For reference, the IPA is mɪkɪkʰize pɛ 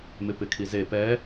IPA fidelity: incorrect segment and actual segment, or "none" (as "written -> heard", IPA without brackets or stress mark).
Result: k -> p